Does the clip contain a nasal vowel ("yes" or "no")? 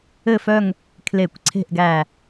no